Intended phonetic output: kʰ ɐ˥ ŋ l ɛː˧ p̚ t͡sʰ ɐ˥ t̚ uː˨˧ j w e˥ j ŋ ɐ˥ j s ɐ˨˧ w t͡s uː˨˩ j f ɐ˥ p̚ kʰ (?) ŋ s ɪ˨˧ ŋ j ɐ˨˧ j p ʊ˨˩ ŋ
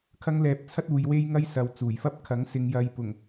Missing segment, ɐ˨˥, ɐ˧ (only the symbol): ɐ˨˥